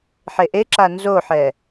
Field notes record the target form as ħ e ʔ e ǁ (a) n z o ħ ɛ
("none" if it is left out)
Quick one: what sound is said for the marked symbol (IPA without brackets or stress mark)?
a